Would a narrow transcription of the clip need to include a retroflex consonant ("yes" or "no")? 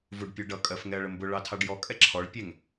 yes